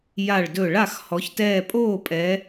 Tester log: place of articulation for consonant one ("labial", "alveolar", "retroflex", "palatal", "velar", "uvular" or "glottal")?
palatal